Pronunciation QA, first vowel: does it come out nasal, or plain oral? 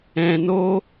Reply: nasal